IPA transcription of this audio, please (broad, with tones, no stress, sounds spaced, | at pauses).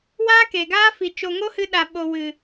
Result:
w aː˦ k e˨ ɡ aː˦ f i˨ t͡ʃ o˨ ŋ o˦ h ɨ˧ ɗ a˨ ɓ o˨ w ɨ˨